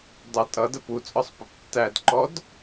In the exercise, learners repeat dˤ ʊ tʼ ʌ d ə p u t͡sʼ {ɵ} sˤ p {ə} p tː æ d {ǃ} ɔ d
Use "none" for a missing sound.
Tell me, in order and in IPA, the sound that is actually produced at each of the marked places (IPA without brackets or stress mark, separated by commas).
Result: ɔ, ə, ǃ